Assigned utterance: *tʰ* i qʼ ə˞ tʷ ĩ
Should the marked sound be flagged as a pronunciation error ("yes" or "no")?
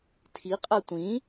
no